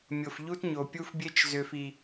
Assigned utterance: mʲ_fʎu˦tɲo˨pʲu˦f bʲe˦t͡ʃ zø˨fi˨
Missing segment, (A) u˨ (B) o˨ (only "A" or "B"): B